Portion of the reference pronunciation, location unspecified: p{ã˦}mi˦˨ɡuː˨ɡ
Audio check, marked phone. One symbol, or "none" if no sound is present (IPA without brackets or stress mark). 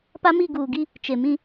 a˦